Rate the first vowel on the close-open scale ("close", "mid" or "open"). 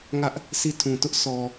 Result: open